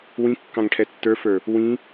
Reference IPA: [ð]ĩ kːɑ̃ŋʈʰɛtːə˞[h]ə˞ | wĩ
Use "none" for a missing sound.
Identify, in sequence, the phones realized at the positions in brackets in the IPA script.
w, f

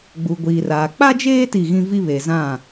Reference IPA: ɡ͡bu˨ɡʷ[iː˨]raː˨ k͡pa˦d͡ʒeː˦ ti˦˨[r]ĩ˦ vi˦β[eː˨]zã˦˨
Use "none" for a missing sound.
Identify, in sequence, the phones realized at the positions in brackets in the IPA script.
iː˨, ɣ, e˨

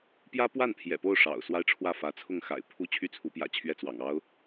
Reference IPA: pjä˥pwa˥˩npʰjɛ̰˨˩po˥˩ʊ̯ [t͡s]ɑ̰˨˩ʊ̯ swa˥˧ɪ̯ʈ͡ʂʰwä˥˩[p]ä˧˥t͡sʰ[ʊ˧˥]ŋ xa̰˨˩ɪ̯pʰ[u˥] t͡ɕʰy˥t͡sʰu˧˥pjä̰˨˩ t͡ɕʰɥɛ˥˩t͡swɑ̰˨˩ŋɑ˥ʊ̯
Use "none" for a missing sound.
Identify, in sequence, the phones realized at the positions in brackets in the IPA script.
ʂ, f, ʊ˥˩, u˥

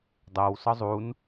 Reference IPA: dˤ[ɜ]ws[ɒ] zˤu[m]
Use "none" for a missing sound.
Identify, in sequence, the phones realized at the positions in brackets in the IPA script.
æ, ɒ, n

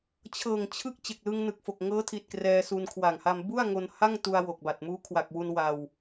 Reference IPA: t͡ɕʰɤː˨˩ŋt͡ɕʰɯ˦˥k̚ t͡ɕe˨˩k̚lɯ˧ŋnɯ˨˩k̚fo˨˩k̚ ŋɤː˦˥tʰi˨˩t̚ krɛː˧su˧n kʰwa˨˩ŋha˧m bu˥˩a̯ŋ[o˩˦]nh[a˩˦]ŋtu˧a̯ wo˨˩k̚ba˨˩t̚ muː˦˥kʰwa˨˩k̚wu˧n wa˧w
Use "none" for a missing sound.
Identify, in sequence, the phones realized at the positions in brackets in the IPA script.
o˧, a˥˩

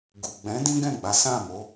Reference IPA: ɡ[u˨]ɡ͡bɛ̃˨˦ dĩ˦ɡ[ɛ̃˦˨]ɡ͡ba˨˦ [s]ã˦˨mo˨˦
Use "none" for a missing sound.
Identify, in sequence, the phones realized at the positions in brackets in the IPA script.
u˨, ɛ̃˦˨, s

